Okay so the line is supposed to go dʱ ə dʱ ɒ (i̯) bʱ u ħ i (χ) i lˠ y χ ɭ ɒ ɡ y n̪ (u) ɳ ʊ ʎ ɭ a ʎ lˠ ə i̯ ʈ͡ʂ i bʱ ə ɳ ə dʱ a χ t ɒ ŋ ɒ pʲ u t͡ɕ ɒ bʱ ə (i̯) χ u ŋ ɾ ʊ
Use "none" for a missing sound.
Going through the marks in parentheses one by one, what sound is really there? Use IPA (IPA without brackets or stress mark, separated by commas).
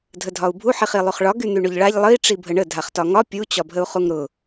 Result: u̯, χ, y, u̯